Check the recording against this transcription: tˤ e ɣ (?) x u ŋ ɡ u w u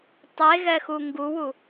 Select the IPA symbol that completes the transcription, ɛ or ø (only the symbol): ɛ